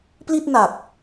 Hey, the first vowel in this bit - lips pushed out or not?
no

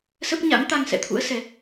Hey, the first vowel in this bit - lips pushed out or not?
no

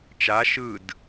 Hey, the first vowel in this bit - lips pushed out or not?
no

